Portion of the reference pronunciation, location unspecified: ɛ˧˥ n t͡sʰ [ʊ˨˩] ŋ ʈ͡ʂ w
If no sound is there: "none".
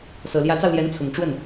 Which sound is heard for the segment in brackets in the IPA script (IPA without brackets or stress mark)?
ʊ˨˩